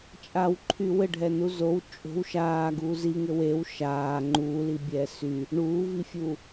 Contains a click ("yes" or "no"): yes